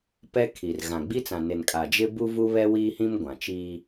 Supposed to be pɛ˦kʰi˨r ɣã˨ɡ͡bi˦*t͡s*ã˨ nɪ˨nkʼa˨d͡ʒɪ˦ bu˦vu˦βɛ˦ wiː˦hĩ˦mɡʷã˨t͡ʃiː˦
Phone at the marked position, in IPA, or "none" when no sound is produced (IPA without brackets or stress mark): t͡s